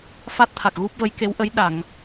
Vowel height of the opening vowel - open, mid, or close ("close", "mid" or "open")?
open